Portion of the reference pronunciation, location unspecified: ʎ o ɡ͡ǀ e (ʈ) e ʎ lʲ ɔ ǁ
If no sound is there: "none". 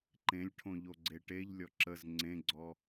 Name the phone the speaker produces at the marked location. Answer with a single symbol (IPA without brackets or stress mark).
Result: ʈ